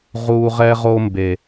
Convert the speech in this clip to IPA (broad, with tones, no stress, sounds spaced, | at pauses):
ʁ u˨ ʁ ɛ˦ ʁ o˦ m b e˨